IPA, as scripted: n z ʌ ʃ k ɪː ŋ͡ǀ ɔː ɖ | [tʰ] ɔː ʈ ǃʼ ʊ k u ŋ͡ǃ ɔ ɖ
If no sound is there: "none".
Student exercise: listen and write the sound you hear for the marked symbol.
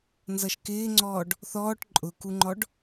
θ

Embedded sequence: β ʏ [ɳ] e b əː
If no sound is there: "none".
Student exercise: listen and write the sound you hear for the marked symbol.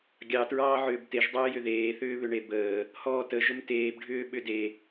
ɳ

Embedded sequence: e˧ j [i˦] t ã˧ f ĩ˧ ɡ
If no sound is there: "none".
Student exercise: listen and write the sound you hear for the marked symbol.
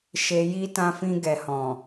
i˦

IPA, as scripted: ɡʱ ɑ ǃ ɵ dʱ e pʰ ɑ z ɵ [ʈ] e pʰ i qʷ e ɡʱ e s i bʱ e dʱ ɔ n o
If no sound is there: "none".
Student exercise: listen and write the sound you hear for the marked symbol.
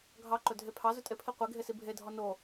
tʼ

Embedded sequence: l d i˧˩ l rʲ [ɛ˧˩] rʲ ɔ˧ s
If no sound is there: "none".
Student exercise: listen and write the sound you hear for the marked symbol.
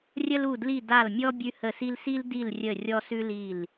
ə˧˩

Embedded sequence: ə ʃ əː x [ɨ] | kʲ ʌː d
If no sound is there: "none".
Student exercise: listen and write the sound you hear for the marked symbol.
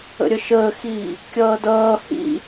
i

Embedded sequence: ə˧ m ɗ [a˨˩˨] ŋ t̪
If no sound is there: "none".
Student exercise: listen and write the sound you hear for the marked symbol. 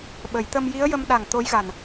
a˨˩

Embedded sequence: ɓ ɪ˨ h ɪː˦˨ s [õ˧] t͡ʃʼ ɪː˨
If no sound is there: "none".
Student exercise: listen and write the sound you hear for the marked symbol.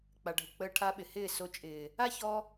o˧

